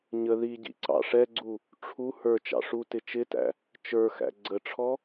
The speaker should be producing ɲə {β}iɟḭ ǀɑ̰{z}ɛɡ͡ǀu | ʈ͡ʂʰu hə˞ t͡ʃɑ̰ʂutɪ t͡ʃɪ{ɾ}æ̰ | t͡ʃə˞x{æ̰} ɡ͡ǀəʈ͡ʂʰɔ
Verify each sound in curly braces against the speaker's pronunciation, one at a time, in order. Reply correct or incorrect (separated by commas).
incorrect, incorrect, incorrect, correct